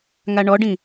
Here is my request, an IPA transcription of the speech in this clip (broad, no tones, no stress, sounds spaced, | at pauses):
ŋ a ɳ ɔ ɖ ĩ